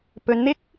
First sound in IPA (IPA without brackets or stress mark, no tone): p